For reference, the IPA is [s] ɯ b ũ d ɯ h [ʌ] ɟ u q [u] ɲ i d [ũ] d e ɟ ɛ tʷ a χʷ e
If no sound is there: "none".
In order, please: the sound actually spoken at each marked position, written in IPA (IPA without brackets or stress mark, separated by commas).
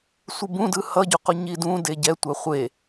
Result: sʷ, ʌ, u, ũ